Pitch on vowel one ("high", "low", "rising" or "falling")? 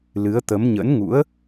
rising